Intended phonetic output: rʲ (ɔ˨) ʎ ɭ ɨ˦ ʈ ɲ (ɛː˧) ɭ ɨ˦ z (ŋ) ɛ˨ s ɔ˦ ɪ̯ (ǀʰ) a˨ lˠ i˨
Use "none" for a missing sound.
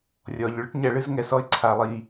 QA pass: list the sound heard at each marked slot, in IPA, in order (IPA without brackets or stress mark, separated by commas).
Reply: ɔ˨, ɛ˧, ŋ, ǀʰ